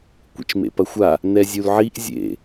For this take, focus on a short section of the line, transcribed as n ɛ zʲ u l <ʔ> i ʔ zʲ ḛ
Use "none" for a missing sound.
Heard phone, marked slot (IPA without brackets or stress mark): ʕ